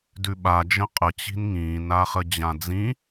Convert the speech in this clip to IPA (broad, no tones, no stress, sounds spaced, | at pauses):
d ʉ ɓ a d͡ʒ ə̃ qʼ ə t͡ɕ i̤ n ŋ ĩː n a χ ə d͡ʑ ã d͡z ĩ